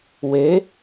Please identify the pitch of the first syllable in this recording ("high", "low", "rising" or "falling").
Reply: rising